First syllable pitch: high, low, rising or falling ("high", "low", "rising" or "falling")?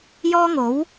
high